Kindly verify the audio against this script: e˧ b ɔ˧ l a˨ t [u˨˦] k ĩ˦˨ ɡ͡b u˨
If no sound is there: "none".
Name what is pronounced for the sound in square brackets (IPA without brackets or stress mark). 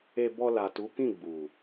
u˨˦